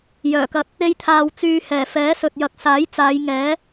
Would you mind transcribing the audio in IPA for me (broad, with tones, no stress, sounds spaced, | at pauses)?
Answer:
j œː˨˩ k ɐ˧ t̚ | e˧ j t̪ʰ aː˨ w t͡s yː˧ h ɛː˨˩ f ɛː˨˥ s ɵ˨ t̚ j ɐ˨ k̚ s aː˨˥ j t͡s aː˨˧ j ŋ ɛː˨˥